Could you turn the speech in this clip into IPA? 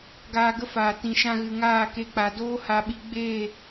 ɡ aː˧ ɡ ə˦ f aː˨ t ĩ˨ ʃ ã˧ ɣ ɨ˨ ŋ aː˦˨ k e˧ k͡p a˨ d oː˦ h a˧ ɓ i˧ ɡ͡b eː˦˨

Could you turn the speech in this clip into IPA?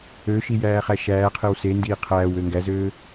ø ʃ i j æː χ æ ʃ æː qʰ e w s e n d iː qʰ æː w ø ŋ ɡ æ z øː

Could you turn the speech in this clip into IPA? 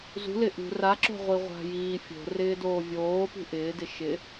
z ṳ l ɪ ʔ ṳ r a ǁ o̤ ʁʷ i ʁʷ a̤ j iː fʲ o̤ r ɪː d oː vʲ oː p ṳ ʔ ɪː d ɪ ʃ ɪ

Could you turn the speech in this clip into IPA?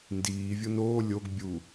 n d iː vʲ o n oː lʲ o ɡ bʲ u

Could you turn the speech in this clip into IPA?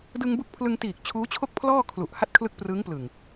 d ɯ˧ ŋ b u˦˥ k̚ pʰ l ɯ˧ ŋ t iː˨˩ k̚ t͡ɕʰ uː˦˥ t͡ɕʰ o˥˩ k̚ pʰ l ɔː˥˩ kʰ l u˨˩ ʔ h a˥˩ t̚ kʰ l ɯ˦˥ k̚ p r ɯ˦˥ ŋ p l ɯ˨˩ ŋ

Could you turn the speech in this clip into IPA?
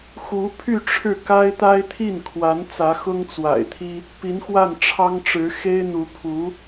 x u˧˥ pʰ y˥˧ ʈ͡ʂʰ ɻ̩˥˩ k a˥ ɪ̯ t̪ a˥ ɪ̯ t̪ʰ i˥˩ n kʰ w a˧˥ n t͡s ä˧˥ x ʊ˥ ŋ t͡s w a̰˨˩ ɪ̯ t̪ʰ i˥ | p i˧˥ n x w a˥˩ n ʈ͡ʂʰ ɑ˥ ŋ ʈ͡ʂ ɻ̩˧˥ x e˥ ɪ̯ n̪ u˧˥ pʰ u˧˥

